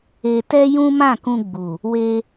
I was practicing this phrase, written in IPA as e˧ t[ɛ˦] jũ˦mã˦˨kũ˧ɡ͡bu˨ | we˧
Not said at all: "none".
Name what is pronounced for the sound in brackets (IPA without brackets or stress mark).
ɛ˦